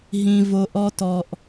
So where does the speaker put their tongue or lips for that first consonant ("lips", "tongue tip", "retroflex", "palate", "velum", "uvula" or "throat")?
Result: throat